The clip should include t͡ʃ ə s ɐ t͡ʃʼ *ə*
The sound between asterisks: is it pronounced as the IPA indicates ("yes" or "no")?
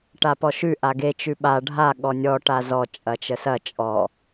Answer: no